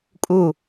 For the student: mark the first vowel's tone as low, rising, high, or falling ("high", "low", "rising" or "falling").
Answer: falling